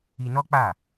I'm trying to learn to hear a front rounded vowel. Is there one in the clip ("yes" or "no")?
no